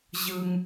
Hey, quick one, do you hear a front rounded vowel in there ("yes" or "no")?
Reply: no